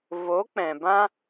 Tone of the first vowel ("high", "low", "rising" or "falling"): rising